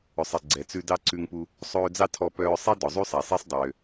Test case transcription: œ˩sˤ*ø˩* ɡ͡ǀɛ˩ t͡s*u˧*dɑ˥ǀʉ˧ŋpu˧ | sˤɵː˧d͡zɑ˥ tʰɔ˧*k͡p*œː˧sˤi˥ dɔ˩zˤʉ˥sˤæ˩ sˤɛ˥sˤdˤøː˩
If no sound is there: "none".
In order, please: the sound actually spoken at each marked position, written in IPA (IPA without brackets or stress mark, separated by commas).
e˩, ʉ˧, p